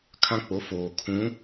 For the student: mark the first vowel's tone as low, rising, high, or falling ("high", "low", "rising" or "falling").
high